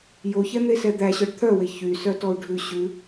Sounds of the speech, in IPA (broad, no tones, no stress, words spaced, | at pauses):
joçɛn̪esɛ d̪æɕœɖ t̪ʰœwe çysœtɔu̯ ɖʱʉ ɕʉ